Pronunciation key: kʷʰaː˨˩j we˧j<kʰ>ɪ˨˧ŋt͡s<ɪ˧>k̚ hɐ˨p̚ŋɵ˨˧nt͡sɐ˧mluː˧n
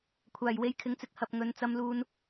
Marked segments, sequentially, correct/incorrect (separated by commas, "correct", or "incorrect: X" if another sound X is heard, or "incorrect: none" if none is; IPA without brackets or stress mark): correct, correct